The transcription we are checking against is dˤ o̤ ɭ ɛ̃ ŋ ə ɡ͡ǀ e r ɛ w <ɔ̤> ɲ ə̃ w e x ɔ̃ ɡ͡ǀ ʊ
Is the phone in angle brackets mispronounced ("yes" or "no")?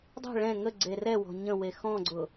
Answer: no